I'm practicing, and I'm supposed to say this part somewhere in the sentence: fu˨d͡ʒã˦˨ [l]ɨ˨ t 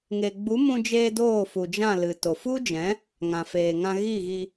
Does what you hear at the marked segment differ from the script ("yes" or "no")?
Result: no